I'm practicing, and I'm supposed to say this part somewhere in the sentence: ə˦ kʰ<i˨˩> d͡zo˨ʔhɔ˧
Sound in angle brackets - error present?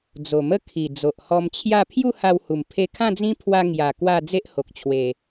no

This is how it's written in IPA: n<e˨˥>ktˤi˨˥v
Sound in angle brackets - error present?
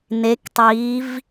no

